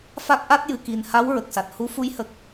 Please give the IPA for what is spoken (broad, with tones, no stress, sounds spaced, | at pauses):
f a˦˥ k̚ ʔ a˦˥ t̚ j ɨ˨˩ k i˨˩ n h a˧˥ w ɹ ə˨˩ k̚ s a˨˩ t̚ h u˧˥ f u˧˥ j h ə˨˩ k̚